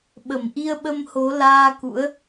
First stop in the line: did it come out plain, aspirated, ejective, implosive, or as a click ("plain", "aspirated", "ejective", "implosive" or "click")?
implosive